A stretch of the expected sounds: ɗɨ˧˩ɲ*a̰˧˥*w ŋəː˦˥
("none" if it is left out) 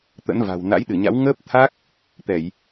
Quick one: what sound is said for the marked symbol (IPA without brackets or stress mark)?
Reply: a̰˧˥